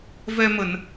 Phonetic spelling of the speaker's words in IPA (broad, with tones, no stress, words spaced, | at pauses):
vɛ˧mə˧˩˨n